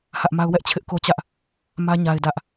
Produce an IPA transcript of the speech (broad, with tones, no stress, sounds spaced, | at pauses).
h ä˦ ʔ m a˦ ʊ̯ w ɛ˦ ʔ t͡ɕʰ ɪ˦ ʔ k o˦ t͡ɕ ä˦ ʔ | m ä˦ ɲ a˦ ɪ̯ d ä˦ ʔ